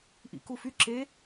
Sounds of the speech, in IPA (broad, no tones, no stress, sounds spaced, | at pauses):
ʔ ḭ k u f y ǁ e